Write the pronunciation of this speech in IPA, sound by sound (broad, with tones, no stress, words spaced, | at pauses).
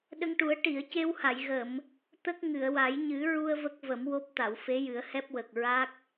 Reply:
ɗə˧ŋʈu˨˩˦ə̯ ʈi˨˩˨ə̯ce˧wha˨˩˨jɣə˨˩˨m | t̪ə˦˥k̚ ŋɨ˨˩˨ə̯wa˨˩˦j ɲɨ˨˩˦ɹu˧ə̯ və˦˥k̚və˨˩˦mwo˦˥p̚ t̪a˨˩˨wfe˧˥jɨ˨˩˦ə̯ hɛ˦˥p̚wə˨˩k̚ɹa˦˥k̚